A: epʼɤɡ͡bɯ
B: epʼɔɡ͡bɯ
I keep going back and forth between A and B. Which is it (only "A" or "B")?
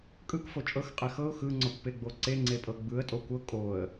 A